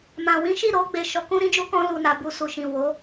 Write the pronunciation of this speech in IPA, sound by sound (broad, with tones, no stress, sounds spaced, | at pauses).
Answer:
m ã˨ w ĩ˨˦ ʃ i˦˨ ɾ o˧ ɡ͡b e˨ ʃ ɔ˨˦ k ũ˦ ɾ ĩ˦ d͡ʒ u˦ k ɔ̃˧ l u˨ n a˨ b u˨ s u˨ ʃ ĩ˨ w o˨˦